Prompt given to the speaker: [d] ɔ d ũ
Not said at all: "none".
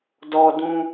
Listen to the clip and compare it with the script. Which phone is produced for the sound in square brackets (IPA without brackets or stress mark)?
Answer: d